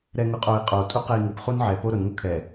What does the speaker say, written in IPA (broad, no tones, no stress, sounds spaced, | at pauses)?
ɾ ɛ ŋ ʊ qʼ o i̯ qʼ o tʼ u q ɛ i̯ ŋ u p χ u n ʕ ɛ p o ɾ ʊ n ŋ ʊ kʰ ɛ